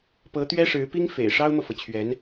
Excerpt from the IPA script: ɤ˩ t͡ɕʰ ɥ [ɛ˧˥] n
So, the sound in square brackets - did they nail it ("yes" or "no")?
yes